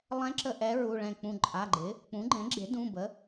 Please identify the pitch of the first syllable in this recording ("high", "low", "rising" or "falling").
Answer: rising